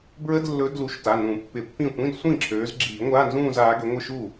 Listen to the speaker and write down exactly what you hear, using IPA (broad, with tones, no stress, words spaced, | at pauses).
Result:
bɹə˧˥˧dlːɵ˨˦ dlu˨˩˦ʃ ta˩˧˩nũ˨˩˦pːɪ˨˩˦pːĩ˥˩ tʷĩ˧˥˧dsʷĩ˥˩ǁʰøː˨˦z ɡ͡ǁiː˨˩˦ŋʷaː˧˥˧nzũː˥˧z aː˨˦ɡø˨˦ ŋʷɪ˥˧ʃu˥˩